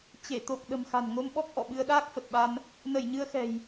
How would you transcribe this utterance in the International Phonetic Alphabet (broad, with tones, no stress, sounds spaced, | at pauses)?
t͡ɕ e˧˩ t̪ o˨˩ k̚ ɗ ə̤˨˩ m x a̤˨˩ n ŋ o˧ m ɓ ɔ˦˥ k̚ ʔ ɔ̰˧˨ ɓ ɨ˧ ə̯ ɗ aː˦˥ k̚ f ə˨˩ t̚ ɓ a˧ n | n ə˧˩ j ɲ ɨ˧ ə̯ x ɛ̤˨˩ j